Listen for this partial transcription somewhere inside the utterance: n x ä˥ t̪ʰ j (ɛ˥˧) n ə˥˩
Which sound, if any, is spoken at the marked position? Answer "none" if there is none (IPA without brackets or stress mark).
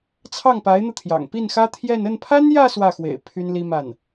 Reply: ɛ˥˧